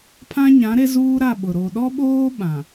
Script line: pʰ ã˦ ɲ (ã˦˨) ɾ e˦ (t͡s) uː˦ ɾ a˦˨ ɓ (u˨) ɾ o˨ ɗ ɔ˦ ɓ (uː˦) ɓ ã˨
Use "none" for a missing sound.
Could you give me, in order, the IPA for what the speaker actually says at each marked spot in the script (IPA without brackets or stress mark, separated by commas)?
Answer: ã˨˦, z, ʊ˨, oː˦